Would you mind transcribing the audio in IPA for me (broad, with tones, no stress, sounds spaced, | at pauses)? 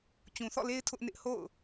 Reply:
t͡ɕ ũ˨ θ ɔ̰˦˨ l e˦ ɪ̯ tʰ ʊ˦ ʔ n ɪ˦ ʔ h o̰˦˨ ʊ̯